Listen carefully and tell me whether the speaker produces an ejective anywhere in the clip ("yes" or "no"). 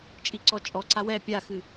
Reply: yes